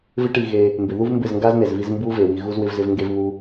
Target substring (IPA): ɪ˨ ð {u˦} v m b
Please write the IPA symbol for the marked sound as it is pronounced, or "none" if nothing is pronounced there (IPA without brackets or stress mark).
u˦